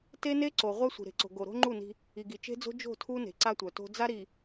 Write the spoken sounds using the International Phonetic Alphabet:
t e˦ n e˦ ǀ o˨ ʁʷ œ˦ sʷ i̤˨ ɾ e̤˨ ǀ o̤˨ ɡ o˨ ɾ o̤˦ ŋ͡ǃ u˦˨ n i̤˦ | i˨ ɡ i˨ t͡ʃ e̤˦ d͡z o̤˦ d͡ʒ o̤˦˨ tʰ u˦ n e̤˨˦ ǀ a˦ tʷ œ˨ t o̤˦ d͡z a˦ ɾ i˨

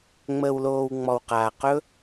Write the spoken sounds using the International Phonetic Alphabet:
ŋ͡m əː˧ w l oː˧ w ŋ͡m ɔ˧ w q aː˧ q ɵ˦

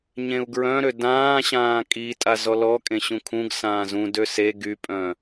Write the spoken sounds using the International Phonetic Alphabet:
ɲ ẽ u̯ ɡ ɹ œ̃ ɾ ø d ãː ɕ ãː kʼ i tʼ a z ɔ l ɔ kʼ ẽ ɕ ũ kʰ ũ ɡ s ãː z ũ d ø s e ɡ y pʼ œ̃

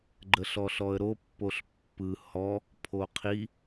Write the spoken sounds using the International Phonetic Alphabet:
ɡ͡ǃ ə ɬ ɔ ɬ ɔ ə̯ ɾ o pː o ɬ pː ɯ h ɔ | pʰ o qʰ i

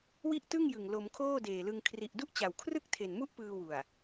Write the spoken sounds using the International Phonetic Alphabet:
w i˥˩ ʔ t ɯ˥˩ ŋ j ɯ˨˩ ŋ l o˩˦ m kʰ oː˥˩ d eː˨˩ l ɯ˧ ŋ kʰ r i˨˩ ʔ d u˥˩ ʔ t͡ɕ a˨˩ w kʰ r ɯ˥˩ k̚ tʰ e˨˩ n m u˥˩ ʔ p ɯː˧ w u˨˩ a̯

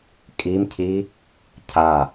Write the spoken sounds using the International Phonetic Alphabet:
kʼ i m cʰ i | cʰ a

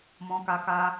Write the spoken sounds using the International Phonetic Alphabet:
m ɔ̃˧ k a˧ k a˧

